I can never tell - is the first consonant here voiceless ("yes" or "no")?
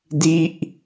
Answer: no